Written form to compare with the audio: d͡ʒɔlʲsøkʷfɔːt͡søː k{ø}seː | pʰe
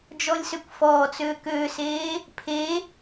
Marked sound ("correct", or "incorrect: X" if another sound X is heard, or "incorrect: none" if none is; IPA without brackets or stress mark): incorrect: øː